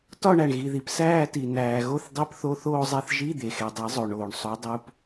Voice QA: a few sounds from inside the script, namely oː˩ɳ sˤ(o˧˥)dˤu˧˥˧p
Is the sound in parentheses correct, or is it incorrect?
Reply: correct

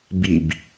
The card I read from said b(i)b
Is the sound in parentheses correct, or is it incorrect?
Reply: correct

